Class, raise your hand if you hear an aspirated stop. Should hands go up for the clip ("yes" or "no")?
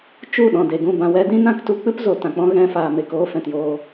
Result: no